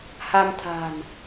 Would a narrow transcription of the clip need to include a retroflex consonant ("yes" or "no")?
no